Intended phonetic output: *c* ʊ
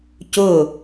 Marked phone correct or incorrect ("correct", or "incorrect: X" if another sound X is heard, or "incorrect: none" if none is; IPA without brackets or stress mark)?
correct